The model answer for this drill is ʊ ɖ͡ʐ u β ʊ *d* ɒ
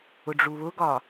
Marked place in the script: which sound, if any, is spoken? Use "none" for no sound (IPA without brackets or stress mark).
ɡ